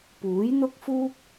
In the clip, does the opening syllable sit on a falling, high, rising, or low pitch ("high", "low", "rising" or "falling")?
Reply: rising